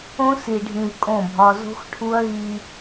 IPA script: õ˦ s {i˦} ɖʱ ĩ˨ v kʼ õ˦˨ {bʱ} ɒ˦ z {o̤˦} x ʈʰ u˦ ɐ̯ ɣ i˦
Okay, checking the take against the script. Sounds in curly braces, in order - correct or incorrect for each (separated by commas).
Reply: incorrect, correct, correct